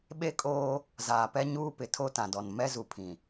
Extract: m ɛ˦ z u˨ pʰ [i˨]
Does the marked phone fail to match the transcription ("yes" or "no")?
yes